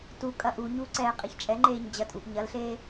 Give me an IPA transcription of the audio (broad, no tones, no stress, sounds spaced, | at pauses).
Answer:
t u kʼ ɐ ʔ u ɲ u ǀ ɛː qʼ e ç t͡ʃʼ ɛ ŋ͡ǃ eː ɲ d͡ʑ ɐ tʼ u ʔ ɲ ɐ l ɬ eː